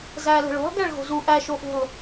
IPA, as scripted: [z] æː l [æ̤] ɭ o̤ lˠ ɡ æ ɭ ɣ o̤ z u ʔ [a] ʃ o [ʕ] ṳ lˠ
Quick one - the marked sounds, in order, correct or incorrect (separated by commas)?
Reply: correct, incorrect, incorrect, incorrect